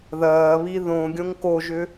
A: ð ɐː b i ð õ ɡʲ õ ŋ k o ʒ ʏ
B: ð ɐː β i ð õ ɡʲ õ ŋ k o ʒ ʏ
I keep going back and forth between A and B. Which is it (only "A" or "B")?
B